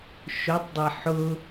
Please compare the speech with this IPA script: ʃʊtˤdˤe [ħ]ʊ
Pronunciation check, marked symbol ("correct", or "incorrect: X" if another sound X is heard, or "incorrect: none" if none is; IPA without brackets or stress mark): correct